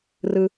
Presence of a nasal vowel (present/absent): absent